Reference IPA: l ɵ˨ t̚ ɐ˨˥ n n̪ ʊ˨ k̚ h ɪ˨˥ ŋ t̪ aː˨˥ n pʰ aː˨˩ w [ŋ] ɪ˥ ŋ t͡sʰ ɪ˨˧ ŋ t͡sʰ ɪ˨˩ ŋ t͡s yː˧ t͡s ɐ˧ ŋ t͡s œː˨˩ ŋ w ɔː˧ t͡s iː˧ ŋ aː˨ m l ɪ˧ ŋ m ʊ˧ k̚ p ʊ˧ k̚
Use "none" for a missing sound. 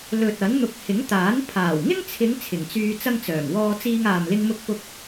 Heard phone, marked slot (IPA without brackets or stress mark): ŋ